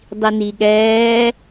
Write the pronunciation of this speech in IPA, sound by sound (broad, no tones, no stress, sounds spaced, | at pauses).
dˤ i n i ɠ ɛː